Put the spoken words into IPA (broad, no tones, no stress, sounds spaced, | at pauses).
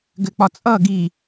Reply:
ɡ ɘ k͡p ɒ t͡sʼ ʌ ɡ i